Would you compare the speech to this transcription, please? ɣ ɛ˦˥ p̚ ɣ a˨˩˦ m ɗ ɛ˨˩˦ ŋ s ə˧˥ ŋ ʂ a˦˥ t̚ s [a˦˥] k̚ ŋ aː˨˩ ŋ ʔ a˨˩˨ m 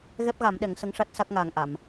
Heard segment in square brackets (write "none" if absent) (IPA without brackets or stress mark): a˦˥